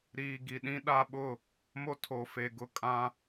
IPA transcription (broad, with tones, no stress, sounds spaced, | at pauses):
ɾ iː˨ ɡ i˨ ɗ ĩ˦ ɗ a˦ ɓ ʊ˦˨ | m o˦ tʰ o˨ f e˨ ɡ ʊ˦ kʼ ã˦